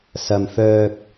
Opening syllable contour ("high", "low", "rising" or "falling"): low